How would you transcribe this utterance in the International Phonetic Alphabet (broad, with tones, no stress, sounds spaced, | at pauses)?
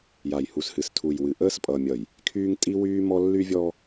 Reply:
j a˨ j h u˨ s h ɨ˨ s tʰ u˨ j w ɨ˨ ʔ əː˦ s pʼ ʌ˨ mʲ ʌ˨ j | kʰ yː˦ ŋ tʼ i˦ w yː˦ m ɔ˦ lː y˦ vʲ ɔ˦